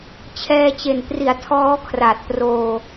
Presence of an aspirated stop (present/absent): present